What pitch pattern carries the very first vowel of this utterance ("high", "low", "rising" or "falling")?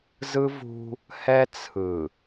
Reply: high